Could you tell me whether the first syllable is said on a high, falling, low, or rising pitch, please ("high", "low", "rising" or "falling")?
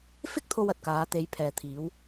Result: high